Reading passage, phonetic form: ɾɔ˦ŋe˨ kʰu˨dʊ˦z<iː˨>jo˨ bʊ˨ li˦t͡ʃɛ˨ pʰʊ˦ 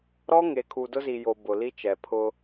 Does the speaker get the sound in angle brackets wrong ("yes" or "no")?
yes